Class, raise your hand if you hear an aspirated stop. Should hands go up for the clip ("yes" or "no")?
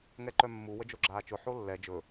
no